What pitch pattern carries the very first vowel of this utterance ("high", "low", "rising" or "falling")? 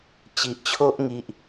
low